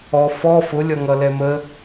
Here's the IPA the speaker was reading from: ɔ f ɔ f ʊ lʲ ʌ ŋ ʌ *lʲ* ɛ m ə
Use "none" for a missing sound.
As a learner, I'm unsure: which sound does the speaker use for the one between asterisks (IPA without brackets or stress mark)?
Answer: l